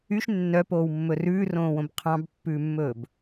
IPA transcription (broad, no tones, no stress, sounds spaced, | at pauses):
y ʃ nː œ p oː w mː ɵ r ʉː r õː w õ b qʰ ɑ̃ b pː ʉː mː ɵː b